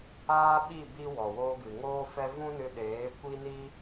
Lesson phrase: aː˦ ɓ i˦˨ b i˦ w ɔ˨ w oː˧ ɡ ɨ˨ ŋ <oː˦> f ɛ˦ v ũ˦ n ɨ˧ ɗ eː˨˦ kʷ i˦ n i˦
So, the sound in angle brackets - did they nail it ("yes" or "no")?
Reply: yes